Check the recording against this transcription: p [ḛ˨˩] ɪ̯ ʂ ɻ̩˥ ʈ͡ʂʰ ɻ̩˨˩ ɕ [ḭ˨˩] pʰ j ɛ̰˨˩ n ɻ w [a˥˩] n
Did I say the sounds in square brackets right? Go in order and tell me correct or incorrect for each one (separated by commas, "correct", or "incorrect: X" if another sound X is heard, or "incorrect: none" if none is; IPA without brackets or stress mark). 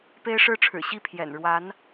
incorrect: e˥, incorrect: i˥˩, incorrect: a˧˥